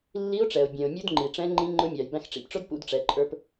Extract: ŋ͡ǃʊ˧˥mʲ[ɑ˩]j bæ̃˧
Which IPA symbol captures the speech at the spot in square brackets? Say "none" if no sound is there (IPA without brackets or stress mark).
ɑ˩